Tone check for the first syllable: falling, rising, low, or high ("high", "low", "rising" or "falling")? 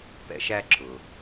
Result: low